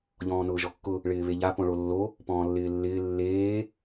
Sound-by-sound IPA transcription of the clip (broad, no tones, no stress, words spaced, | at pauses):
ʎɔ̃ːnʊːʒɔkːʊ | ɭɪːβeʎa põɭolːo | pɔ̃ːlːɪːlːɪː lːeː